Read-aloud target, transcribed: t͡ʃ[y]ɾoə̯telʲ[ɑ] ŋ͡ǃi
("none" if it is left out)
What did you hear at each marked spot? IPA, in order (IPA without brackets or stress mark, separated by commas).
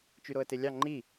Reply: y, ɑ